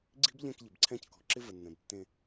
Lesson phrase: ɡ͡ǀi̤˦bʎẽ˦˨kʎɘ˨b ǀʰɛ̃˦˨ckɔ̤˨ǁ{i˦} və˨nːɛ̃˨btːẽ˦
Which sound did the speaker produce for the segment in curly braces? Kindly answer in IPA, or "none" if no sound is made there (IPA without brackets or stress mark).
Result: ɪ˦